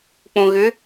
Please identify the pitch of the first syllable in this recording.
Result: low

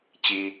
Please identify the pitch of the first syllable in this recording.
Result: high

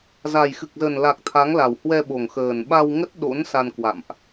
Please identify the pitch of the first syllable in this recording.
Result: low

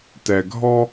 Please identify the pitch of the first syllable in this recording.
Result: low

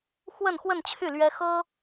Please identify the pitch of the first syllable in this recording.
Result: falling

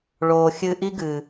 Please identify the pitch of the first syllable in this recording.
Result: low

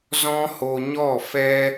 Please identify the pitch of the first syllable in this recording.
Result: high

